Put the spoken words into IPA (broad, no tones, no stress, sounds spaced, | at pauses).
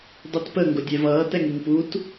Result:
dˤ i t p ə ŋ ɡ ʊ dʲ ɛ v ʌː t ɛ ŋ i ŋ p u t